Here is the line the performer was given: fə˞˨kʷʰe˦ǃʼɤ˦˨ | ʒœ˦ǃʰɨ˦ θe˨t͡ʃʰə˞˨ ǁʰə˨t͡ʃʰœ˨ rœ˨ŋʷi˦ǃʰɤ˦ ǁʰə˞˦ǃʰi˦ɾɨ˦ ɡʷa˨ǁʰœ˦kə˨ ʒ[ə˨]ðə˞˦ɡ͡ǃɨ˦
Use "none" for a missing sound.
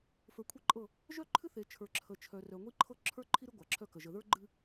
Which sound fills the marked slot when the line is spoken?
ə˨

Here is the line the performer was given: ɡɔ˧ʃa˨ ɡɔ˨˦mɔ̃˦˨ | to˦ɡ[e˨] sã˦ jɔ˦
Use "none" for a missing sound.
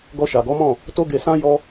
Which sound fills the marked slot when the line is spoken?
e˧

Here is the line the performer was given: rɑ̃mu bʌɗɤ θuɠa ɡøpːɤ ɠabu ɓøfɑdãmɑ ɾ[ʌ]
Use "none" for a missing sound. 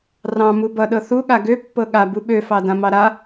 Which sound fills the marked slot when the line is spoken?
a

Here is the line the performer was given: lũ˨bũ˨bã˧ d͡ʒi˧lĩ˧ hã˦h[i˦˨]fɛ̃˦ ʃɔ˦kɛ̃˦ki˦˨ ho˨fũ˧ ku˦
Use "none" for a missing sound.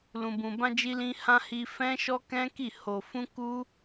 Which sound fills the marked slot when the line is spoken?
i˧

